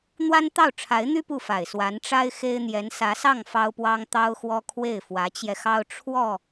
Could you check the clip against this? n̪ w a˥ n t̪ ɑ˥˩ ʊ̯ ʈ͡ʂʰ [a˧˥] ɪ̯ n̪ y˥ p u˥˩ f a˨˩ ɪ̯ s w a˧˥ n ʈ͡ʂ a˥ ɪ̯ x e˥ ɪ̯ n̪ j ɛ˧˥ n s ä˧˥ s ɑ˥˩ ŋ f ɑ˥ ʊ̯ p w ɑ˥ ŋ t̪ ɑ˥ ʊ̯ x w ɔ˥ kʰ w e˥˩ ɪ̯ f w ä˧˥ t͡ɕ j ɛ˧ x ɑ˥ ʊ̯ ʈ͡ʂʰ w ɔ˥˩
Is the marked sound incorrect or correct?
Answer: correct